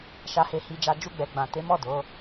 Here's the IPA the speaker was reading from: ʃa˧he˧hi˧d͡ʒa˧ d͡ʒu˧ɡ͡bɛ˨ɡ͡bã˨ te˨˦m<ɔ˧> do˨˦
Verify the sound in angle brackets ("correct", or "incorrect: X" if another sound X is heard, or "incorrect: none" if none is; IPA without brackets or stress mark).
incorrect: ɔ˦˨